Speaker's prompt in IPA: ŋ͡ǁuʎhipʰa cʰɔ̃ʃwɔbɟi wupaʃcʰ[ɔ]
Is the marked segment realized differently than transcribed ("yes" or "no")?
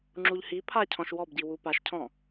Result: yes